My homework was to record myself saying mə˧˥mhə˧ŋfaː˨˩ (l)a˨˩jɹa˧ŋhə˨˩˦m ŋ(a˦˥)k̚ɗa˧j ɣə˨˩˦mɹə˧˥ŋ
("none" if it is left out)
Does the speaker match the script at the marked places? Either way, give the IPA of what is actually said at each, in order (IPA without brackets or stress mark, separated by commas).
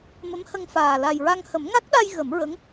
l, a˦˥